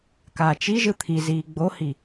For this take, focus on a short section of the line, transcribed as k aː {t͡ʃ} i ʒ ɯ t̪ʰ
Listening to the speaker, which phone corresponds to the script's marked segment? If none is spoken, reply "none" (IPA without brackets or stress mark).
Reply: t͡ʃ